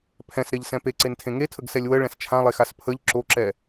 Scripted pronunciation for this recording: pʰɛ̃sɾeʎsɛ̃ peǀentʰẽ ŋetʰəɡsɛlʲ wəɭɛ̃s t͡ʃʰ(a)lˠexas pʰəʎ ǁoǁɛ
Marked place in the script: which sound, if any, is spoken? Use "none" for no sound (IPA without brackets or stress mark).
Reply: ã